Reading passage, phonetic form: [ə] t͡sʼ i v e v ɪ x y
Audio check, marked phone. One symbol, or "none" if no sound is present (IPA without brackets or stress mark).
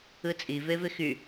ɯ